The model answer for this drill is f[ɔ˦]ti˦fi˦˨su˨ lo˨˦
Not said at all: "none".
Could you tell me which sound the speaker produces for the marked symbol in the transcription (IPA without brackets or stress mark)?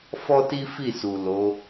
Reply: ɔ˦